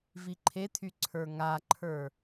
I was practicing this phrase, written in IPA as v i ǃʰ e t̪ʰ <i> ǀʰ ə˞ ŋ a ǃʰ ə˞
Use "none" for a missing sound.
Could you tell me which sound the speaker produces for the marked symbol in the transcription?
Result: y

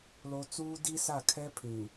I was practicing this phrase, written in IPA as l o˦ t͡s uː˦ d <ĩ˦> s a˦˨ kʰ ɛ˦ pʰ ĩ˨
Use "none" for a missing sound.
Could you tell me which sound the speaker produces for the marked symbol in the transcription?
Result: i˦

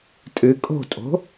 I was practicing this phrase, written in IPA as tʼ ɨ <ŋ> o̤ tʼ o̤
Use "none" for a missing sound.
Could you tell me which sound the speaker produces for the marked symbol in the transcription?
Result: kʼ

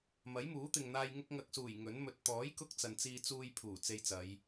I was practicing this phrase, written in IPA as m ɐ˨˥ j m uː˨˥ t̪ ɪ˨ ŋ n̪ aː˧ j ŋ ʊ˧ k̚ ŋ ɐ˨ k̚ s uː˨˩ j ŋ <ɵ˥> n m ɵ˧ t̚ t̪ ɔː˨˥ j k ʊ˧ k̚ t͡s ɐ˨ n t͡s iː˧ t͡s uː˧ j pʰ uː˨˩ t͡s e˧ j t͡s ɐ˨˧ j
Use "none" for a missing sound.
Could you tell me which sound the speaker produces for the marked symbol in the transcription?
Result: ɵ˨˥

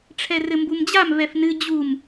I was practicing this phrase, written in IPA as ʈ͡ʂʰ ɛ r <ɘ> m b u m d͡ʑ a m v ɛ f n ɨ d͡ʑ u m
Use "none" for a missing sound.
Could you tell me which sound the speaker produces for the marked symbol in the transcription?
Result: ɘ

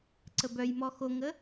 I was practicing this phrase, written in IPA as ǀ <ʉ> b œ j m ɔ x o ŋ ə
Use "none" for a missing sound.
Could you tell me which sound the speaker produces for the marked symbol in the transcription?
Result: ə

